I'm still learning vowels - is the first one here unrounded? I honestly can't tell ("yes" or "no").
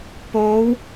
no